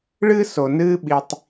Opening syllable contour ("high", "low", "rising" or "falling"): high